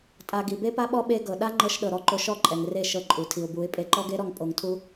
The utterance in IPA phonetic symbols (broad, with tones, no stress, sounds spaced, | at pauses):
tʼ a˨ ɡ i˨ b e˦ p a˦ ɓ ɔ˦ ɓ e˧ ɡ ɤ˨ ɗ a˦ ŋ͡ǃ ɤ˧ ʃ ɗ ɤ˨ ɾ ɔ˧ ǃ o˧ ʃ ɔ˦˨ ǃʼ ɛ˨ ŋ r e˦˨ ʃ ɤ˧ ǃʼ u˨ tʰ i˨ ʊ̯ b u˨˦ ɪ̯ pʼ e˧ ǃ ɔ˦ ɡ e˦ ɾ ɔ˧ ŋ pʼ o˧ ŋ tʰ u˦